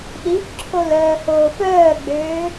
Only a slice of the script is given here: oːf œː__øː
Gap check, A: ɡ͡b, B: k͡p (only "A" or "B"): A